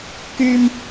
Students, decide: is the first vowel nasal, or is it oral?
oral